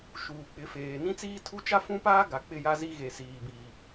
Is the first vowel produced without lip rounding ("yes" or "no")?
no